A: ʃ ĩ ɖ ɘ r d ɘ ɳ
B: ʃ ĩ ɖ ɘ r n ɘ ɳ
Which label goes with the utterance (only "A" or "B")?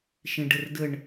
A